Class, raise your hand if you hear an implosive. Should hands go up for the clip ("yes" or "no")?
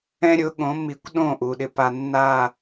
yes